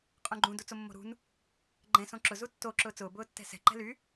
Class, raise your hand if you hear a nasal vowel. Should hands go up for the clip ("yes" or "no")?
yes